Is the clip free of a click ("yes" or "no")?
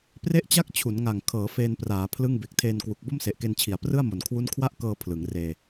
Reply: yes